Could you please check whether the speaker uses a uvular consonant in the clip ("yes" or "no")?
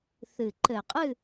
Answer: yes